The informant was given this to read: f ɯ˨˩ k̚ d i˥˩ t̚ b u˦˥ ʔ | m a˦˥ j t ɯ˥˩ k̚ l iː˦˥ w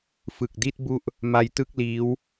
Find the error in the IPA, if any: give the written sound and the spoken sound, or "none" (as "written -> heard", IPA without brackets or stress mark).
none